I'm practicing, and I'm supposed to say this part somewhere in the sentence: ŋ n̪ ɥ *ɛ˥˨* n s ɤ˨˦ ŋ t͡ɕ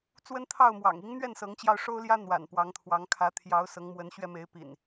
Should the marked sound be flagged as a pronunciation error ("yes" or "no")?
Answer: no